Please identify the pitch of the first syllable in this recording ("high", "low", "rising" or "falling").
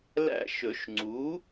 falling